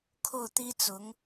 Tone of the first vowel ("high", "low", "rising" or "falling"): falling